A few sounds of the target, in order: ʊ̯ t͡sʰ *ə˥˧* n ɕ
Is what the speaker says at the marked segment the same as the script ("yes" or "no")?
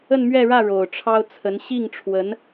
no